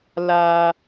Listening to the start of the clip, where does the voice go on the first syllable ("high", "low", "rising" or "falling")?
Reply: high